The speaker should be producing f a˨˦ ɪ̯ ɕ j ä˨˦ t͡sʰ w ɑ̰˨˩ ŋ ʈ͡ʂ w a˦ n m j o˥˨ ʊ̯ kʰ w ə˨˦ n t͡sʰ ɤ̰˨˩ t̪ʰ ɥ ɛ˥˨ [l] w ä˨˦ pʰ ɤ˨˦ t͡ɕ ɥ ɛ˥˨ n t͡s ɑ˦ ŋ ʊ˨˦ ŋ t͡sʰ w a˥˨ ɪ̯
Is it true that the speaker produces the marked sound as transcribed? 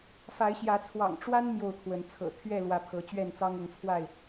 yes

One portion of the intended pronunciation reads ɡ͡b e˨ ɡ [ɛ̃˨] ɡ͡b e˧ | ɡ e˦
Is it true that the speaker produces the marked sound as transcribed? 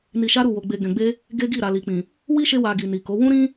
yes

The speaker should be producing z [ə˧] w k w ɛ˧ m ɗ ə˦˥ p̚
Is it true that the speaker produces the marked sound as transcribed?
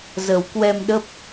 no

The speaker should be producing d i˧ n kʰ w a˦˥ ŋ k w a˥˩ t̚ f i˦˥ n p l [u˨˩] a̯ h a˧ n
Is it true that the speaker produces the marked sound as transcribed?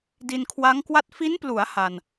no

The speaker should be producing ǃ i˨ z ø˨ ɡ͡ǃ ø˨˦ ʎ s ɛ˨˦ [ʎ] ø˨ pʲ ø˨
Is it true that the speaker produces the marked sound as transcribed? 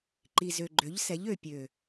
yes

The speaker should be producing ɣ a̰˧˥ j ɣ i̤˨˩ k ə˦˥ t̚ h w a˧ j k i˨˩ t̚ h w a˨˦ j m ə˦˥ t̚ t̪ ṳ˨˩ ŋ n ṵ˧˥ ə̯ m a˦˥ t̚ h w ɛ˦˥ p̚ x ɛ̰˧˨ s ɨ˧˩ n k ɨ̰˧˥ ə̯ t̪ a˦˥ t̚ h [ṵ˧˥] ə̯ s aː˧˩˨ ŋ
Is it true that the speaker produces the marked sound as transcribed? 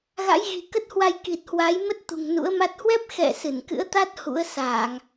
yes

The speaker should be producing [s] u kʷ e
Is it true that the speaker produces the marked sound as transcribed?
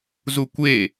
no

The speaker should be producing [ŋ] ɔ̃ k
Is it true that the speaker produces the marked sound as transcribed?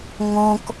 yes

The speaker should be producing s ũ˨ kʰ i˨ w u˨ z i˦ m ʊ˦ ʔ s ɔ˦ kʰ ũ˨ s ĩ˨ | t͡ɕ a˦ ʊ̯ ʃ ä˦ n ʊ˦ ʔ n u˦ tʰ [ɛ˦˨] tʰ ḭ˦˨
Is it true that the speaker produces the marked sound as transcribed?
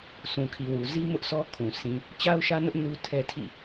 no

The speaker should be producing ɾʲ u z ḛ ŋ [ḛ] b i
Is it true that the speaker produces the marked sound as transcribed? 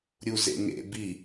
yes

